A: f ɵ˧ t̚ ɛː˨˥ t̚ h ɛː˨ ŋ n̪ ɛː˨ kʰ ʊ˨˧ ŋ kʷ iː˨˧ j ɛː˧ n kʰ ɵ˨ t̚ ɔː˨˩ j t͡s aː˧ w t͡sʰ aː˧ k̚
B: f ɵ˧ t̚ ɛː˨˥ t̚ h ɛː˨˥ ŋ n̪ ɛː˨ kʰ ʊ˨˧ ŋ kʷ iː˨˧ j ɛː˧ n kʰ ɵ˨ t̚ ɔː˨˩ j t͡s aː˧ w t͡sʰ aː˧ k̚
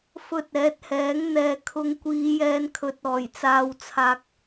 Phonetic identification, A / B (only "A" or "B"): B